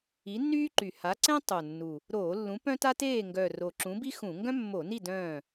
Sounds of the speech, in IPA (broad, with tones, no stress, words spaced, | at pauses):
i˨˥nːyː˥ǃy˨˩ ha˨˥ǀɛ̃˥ tˤo˨˩nːu˨˩ | ɾoː˧˩˧lːũ˨˥ pœ̃˥ta˥teː˥˨ ŋɡœ˨˩ ro˨˩ǁũ˨˥bi˥xũ˧˩˧ ŋɡœ̃˥mːo˧˩˧ni˥˨ dœ̃ː˥˨